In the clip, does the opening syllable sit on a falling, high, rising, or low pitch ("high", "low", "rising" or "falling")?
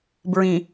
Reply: low